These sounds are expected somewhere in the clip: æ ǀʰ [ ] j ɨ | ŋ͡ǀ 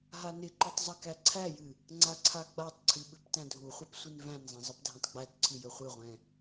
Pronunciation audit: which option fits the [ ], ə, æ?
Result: æ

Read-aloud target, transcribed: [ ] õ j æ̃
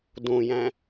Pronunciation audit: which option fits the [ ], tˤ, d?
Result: d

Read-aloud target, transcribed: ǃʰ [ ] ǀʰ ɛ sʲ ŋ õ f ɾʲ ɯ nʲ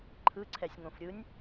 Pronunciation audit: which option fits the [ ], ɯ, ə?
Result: ɯ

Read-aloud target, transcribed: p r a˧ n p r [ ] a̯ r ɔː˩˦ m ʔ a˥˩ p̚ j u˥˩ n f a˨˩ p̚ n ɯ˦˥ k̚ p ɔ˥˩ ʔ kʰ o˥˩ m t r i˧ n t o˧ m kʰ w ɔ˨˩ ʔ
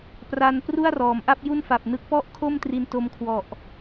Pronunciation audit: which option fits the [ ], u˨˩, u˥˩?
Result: u˥˩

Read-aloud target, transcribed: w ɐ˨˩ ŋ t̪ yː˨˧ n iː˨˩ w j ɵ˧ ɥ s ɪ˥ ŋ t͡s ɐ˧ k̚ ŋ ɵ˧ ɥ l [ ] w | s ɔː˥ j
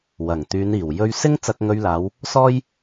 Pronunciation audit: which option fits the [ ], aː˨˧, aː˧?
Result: aː˨˧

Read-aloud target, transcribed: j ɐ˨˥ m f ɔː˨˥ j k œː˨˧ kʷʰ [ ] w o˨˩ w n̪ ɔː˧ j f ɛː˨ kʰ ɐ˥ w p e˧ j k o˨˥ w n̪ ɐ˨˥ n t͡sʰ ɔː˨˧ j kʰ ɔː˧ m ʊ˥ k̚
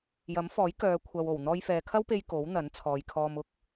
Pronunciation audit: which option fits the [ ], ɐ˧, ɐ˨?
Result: ɐ˨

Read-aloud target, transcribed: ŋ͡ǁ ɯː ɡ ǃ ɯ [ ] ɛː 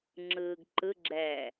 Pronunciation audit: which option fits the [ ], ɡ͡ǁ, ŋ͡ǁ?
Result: ɡ͡ǁ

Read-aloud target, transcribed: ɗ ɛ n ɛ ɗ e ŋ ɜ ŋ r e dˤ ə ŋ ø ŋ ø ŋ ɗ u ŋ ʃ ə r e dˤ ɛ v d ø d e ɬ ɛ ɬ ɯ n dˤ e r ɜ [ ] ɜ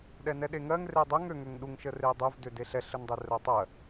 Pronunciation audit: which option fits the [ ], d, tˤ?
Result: tˤ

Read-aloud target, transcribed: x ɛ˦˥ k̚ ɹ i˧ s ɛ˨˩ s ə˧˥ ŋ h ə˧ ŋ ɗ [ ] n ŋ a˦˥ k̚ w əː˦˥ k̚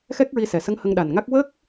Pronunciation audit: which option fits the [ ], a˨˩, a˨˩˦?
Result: a˨˩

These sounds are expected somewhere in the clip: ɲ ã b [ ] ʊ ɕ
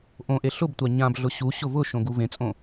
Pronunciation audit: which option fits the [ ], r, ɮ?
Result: ɮ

